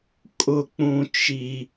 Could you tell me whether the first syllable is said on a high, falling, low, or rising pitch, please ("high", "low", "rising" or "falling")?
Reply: low